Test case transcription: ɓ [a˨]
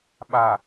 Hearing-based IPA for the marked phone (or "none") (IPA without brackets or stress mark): a˨